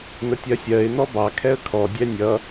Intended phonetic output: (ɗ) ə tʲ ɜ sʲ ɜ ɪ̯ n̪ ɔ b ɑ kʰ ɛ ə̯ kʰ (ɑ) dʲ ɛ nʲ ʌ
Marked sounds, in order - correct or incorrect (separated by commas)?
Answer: incorrect, incorrect